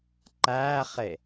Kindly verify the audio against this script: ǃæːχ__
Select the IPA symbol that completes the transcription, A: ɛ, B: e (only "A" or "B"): B